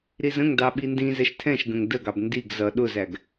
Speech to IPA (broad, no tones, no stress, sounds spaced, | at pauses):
ɾ i z ə̃ ŋ d ɑ ɓ i n d ĩ z ɛ ʃ tʰ ɛ̃ ʃ ɡ ə̃ ŋ d ə ɡ ɑ b n d i ɡ z ʌ ɗ ʊ z æ ɡ